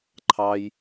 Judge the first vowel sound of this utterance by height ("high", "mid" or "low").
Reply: low